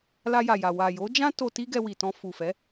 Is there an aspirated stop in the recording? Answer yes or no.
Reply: no